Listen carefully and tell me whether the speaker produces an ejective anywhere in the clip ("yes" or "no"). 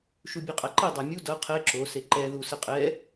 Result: yes